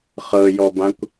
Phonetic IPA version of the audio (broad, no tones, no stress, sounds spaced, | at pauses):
χ ɤ j ɔ b ã kʷ